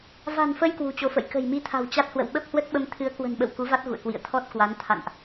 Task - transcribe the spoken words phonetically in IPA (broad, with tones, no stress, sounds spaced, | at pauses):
v a̤˨˩ n f ə˧ j k w ṳ˨˩ t͡ɕ o˨˦ f ə̰˧˨ j k ə̤˨˩ j m i˧ t̪ʰ a̤˨˩ w t͡ɕ a˦˥ t̚ h w ə̰˧˨ w ɓ ə˦˥ p̚ h w ə˦˥ t̚ ɓ ə˧ m t̪ʰ ɨ˨˦ ə̯ k w ə̤˨˩ n ɓ ə̰˧˨ w k u˨˦ v a˦˥ t̚ ɣ ṵ˧˨ ə̯ k w ḭ˧˨ ə̯ t̪ʰ ɔ˦˥ t̚ k w a˨˦ n t̪ʰ a̰˧˨ n ʔ